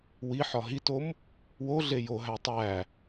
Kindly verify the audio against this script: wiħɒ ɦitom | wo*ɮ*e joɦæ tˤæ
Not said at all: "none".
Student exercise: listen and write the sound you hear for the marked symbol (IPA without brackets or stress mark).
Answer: ɮ